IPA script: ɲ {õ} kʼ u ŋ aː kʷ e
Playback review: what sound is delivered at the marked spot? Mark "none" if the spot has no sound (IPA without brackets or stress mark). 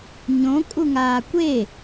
õ